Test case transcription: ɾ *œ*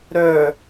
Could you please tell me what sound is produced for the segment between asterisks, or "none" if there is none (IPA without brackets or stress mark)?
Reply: œ